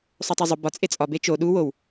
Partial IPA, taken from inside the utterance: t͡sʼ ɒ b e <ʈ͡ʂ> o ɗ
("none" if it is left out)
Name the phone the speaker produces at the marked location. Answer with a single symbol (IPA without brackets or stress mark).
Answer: t͡ʃ